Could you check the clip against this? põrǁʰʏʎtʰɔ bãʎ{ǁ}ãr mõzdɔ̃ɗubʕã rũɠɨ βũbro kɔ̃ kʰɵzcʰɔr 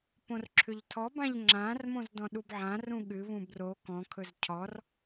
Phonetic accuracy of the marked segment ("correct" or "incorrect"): incorrect